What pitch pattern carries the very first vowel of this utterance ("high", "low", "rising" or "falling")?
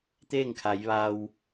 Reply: falling